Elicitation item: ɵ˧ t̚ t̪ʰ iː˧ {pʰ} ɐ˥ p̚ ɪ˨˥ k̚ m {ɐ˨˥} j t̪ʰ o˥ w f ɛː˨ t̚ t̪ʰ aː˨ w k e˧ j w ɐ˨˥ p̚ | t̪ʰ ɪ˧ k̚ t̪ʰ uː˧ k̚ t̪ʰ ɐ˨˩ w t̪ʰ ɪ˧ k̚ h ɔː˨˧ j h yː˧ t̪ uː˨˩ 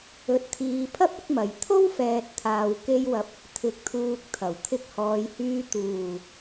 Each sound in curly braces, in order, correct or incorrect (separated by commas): correct, incorrect